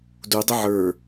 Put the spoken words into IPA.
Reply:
d u dˤ e ʕ ə˞

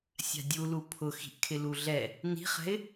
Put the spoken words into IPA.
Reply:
sʲ a̤ dʲ u l u pʰ ʊ x i̤ ʔ kʰ ɪ l u ɮ ɛ | n i̤ χ ɛ̤ ɪ̯

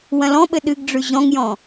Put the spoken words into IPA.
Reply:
w ɐ̃ l ɔ̃ ɓ ɘ ɗ ɨ ɡ ɖ͡ʐ ʉ ʑ ɔ̃ ŋ j ɔ̃

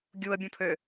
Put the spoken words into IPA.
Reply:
ɡʲ u ə̯ bʲ õ pʰ ø

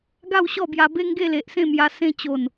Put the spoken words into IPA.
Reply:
ɡ a˥˧ w ɕ ɔ˥˧ b j a˧ b e˦ ŋ ɡ e˥˧ l e˨ ʔ s ẽ˥˧ m j a˧ s ẽ˥˧ t͡ɕ o˨˩ n

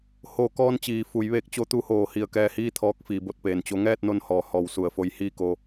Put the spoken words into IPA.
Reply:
h o˧˩ k ɔː˧ n t͡ɕ iː˩ f u˩˧ j ʋ eː˧ k̚ t͡ɕ o˧ t̪ u˧ h oː˧˩ h i˧˩ ə̯ k ɛː˧ h iː˥˨ t̪ʰ ɔː˧˥ k̚ f iː˩˧ b o˧ t̚ p eː˩ n t͡ɕ o˧˥ ŋ ɛː˥˨ t̚ n o˥˨ n h ɔː˧˩ h ɔː˧˩ w s u˧˩ ə̯ f o˧ j h iː˥˨ k o˧

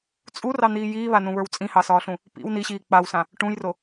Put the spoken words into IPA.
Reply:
t͡sʼ u r ɑ n̪ iː j iː β a n ũ β ə˞ w t͡sʼ ĩ h ɑ s ɒː ɬ ũ | p ḭ w n i ɕ iː k͡p a w s ã | ʈ ũ j r o

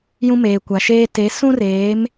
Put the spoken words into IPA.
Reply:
j ũ˦ m eː˨ kʷ a˨ ʃ eː˦ t e˨˦ s ũ˦ r eː˨˦ m

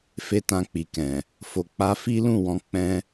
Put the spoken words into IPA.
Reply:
f e˦ t ã˧ k͡p i˨ k ɛ̃˨ | f o˧ k͡p a˦ f i˦ l ũ˦˨ w ɔ̃˨˦ k͡p ɛ̃˦

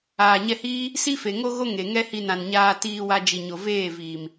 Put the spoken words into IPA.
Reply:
aː˨ ɲ ɛ˧ h iː˦ | s i˦ f e˨ ŋ o˦ ɣ o˦ ŋ e˨ ŋ ɛ˦ h i˧ n ã˨ n ɲ aː˧ t iː˧ w a˧ d͡ʒ i˨ ɲ o˨ v eː˦˨ v iː˨ m

